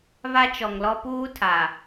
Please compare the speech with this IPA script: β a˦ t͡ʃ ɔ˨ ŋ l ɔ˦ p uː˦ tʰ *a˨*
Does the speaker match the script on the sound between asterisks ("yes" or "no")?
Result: yes